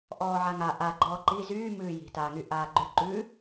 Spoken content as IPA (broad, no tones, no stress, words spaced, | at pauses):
ʔɔːʕaŋa ʔa ɡ͡ǃɔːǃi zyː mʉːji̤ taːŋyʔaːɡ͡ǃʉ ǃʉ